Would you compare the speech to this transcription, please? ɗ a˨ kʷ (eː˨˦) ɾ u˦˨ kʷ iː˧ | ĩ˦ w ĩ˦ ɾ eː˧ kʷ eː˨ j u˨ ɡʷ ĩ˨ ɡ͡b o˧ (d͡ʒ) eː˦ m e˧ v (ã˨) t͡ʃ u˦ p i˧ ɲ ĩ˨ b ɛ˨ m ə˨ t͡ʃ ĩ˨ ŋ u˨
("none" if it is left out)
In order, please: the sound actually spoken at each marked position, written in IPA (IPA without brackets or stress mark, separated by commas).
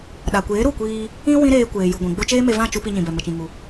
eː˨˦, t͡ʃ, ã˦˨